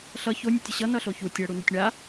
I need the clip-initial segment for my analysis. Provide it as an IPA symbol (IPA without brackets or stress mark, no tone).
ɬ